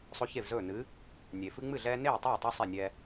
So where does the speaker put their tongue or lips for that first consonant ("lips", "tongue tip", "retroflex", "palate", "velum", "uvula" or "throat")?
tongue tip